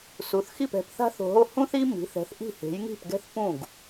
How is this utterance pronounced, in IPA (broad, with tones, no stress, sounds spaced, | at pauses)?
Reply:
s u˩˥ θ x i˥˩ p ɛ̤˩˥ p θ a̤˥ θ o̤˧ ɦ o˥˩ h ũ˥ θ i˥ m i̤˩˥ θ ɛ̤˩˥ θ ʔ i̤˥˩ h e̤˩˥ j ŋ i̤˥˩ p ɡ ɛ̤˥˩ θ p ũ˥˩ ɡ